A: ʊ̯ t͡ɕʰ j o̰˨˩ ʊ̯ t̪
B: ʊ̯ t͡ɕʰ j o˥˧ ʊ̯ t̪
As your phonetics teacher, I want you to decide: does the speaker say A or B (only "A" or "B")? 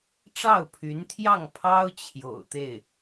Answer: A